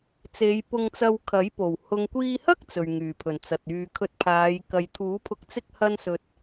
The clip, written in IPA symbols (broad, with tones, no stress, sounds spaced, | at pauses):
t͡s e˨˧ j p ʊ˧ ŋ t͡s ɐ˧ w kʰ ɐ˨˥ j p o˨˩ w h ʊ˨ ŋ kʷ iː˧ h ɐ˥ k̚ t͡s ɵ˨ ɥ ŋ yː˨˩ pʰ ɵ˨˩ n t͡s ɐ˨ t̚ yː˨ kʰ ɵ˧ t̚ pʰ aː˨˧ j k ɐ˨ j t̪ʰ uː˨˥ pʰ ʊ˧ k̚ t͡s ɪ˥ k̚ h ɐ˥ n s ɵ˧ t̚